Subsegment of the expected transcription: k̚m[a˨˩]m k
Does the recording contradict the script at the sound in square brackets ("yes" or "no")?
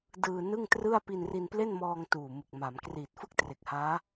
yes